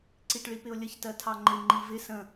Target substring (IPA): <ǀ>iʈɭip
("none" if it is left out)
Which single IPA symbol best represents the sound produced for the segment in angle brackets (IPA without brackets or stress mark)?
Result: ǀ